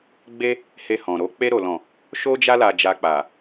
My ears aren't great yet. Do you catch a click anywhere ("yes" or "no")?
no